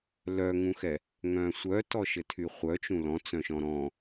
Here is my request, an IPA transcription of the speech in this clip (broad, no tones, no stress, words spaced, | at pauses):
lœŋũxɛ | ŋœ̃sʷœtɔ ʃɘtʰyχʷœt͡ʃũ lɔ̃t͡sœ̃ʃɔ̃ ɾɔ̃